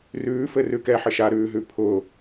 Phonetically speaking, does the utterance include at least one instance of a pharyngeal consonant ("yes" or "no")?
yes